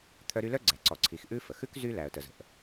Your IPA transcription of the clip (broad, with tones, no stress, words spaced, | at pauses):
t̪ʰœ˦ɾy˦lœ˥ɡ͡ǀæ˨ ǀɔ˨ǀʰi˨x ʔʉ˥ fə˩xʉ˥k zy˥ læ˨ə̯tə˨zə̤˨ʔ